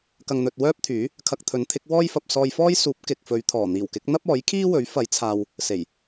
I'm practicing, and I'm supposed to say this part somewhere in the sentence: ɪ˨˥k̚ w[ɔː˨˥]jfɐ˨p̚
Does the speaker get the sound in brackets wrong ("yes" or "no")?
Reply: yes